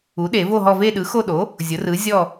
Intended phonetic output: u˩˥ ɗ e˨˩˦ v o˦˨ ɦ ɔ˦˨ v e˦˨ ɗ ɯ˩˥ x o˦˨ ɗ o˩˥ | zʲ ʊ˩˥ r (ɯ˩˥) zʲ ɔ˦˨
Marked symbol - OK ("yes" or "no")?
yes